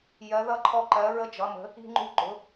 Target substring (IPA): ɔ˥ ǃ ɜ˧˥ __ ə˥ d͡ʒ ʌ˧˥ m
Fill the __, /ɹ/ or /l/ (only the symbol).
ɹ